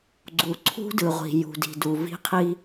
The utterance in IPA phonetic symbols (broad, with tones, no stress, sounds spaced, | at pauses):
ɡ͡ǀ u˨ ǀʰ ṳ˦ d ɯ˨ ʁʷ i̤˨ j ṳ˨ d i̤˨ d u˨ v i̤˦ qʰ i˦